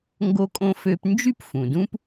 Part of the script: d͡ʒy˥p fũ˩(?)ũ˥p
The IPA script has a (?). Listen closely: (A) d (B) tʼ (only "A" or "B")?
A